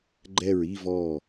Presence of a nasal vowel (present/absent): absent